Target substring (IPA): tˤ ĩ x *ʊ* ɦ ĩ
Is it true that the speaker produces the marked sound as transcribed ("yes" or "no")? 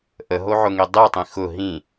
yes